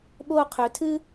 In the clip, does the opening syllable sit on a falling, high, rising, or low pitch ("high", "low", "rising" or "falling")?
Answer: high